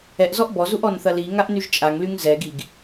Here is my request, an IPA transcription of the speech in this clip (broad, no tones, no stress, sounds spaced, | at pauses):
ɛ ʔ z ɔ ʔ b ɔ z u ʔ ɔ n θ ɐ l i ŋ a ʔ n y ʒ t͡ʃʼ a ŋ l y ŋ z ɛ ɡ i ɡ